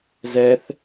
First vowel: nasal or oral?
oral